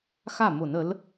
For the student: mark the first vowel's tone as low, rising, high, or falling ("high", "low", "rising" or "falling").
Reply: falling